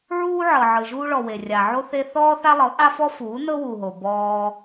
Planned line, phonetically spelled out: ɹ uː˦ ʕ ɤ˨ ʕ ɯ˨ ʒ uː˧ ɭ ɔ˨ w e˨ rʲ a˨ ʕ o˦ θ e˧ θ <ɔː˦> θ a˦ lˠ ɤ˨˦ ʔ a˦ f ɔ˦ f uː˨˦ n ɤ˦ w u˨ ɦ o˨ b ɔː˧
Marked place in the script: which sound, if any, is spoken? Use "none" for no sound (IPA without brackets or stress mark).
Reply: ɔː˦